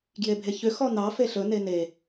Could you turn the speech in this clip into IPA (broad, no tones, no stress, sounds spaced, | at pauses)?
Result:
ɡ j e bʱ e ç ʏ x ɔ n ɑ f e ɬ ɵ n e n e